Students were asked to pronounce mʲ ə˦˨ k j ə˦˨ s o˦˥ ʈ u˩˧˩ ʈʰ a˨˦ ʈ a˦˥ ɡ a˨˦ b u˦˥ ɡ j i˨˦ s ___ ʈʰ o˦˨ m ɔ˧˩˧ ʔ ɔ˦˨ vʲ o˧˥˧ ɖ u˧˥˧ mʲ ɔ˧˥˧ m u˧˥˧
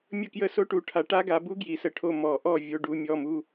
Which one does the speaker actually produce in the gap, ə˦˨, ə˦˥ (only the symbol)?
ə˦˨